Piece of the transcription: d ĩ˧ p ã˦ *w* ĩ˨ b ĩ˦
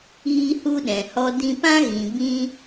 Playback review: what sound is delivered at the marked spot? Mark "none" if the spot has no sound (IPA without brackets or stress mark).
ɣ